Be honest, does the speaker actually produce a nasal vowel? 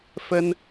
no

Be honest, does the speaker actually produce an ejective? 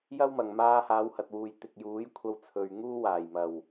no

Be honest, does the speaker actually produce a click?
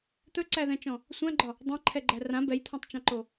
yes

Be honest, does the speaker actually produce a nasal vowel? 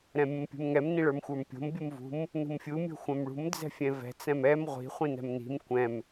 yes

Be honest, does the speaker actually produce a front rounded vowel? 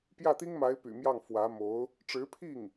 yes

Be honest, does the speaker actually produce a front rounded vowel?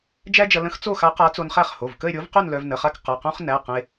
yes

